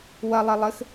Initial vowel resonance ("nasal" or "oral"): oral